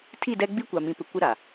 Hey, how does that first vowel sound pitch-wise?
falling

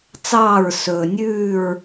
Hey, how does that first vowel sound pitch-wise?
falling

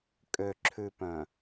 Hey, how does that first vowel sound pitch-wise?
low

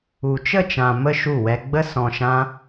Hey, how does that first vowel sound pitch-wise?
low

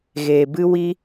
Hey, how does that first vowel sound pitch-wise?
low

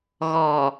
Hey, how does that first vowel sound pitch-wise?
low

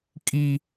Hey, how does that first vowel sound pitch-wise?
high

